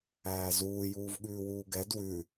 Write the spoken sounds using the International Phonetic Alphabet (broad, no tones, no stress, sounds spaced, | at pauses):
æː z uː j uː v ɠ ʉː w uː ɡ ɛ d w ʉ